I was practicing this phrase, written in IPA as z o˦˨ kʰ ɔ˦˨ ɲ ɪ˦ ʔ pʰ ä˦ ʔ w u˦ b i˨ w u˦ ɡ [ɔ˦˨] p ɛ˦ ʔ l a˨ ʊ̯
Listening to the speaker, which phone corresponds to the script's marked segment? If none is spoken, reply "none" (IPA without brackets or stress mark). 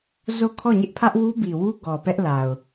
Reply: ɔ˨